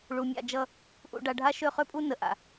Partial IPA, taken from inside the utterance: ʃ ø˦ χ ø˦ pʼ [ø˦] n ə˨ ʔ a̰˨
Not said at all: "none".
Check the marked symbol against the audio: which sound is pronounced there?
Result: u˦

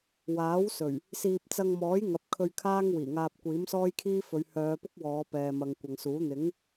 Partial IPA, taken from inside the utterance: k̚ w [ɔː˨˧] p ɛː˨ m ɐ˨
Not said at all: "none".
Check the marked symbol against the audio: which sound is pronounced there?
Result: ɔː˨˧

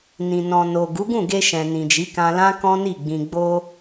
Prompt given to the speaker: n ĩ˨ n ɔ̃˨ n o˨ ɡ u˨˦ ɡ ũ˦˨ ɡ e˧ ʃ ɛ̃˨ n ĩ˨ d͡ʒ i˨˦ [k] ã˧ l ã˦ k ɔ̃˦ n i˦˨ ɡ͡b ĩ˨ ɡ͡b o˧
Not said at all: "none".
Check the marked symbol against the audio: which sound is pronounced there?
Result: k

